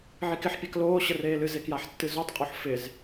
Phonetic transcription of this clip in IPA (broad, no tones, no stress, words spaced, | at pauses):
ʕikɪħpʲak loːɕə reːlɨze kjaħtːɨzotˤqʼoħ fɪz